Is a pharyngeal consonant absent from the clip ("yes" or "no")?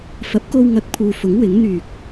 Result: yes